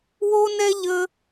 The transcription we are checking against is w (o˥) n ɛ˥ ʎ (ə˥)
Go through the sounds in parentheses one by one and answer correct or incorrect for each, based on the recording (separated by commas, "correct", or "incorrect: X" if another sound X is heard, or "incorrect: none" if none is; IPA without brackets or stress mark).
correct, correct